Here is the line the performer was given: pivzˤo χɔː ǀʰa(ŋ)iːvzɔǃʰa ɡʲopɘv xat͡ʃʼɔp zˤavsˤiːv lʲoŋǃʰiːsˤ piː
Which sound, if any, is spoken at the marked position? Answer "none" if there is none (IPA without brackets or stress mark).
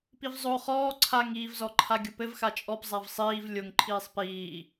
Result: ŋ